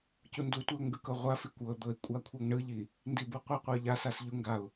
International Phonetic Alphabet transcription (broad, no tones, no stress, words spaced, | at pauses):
cundutʷiʊ̯ ŋɡɯkɤʁʷafi kʷɤd̪ɤɪ̯ kʷʼakʷʰɤŋɳɯʎi | ndibuqʷiqʷɤ ʎasas ʎu ŋɡaʊ̯